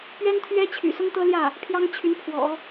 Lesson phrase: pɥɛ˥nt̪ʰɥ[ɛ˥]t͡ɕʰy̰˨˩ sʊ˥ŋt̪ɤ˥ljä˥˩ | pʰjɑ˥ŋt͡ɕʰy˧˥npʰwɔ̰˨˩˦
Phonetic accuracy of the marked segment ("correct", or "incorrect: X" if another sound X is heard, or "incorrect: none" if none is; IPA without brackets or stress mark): correct